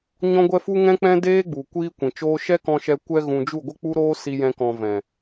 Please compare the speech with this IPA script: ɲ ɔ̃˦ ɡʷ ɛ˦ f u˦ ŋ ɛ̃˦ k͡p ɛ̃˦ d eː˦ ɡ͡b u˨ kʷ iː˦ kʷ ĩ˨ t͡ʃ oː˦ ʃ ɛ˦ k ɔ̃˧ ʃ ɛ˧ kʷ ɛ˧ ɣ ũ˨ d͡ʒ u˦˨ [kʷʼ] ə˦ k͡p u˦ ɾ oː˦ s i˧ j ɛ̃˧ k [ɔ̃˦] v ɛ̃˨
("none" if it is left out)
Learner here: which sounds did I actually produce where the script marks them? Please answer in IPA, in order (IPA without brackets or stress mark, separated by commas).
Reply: ɡʷ, ɔ̃˨